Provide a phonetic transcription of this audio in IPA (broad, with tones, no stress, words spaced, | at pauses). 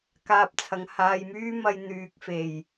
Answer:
kaː˧p̚t͡sʰɐ˨ŋ haː˨jmyː˥mɐ˧j n̪yː˨k̚fe˨˩j